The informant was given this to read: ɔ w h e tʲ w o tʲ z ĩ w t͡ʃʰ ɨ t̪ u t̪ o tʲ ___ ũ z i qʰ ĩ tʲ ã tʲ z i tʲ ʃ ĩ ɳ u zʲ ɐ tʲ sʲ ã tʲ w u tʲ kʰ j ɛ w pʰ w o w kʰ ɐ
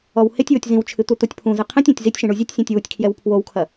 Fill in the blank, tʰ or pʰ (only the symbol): pʰ